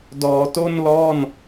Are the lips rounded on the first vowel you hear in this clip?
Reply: yes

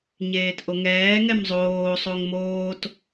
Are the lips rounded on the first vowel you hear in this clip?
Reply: no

